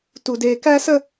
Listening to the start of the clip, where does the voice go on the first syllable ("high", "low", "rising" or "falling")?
high